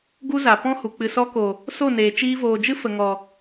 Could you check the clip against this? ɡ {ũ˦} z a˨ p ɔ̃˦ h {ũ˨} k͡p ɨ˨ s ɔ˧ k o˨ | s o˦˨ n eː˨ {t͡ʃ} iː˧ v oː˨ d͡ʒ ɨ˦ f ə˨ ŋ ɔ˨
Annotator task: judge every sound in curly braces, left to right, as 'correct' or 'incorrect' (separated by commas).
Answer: incorrect, incorrect, correct